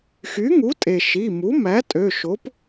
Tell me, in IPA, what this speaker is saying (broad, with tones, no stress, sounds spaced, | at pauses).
x y˩˥ ŋ u˩˥ tʼ e˩ ʃ i˩˧˩ m u˩˥ m æ˩˥ tʼ ø˩˧˩ ʃ o˩˥ p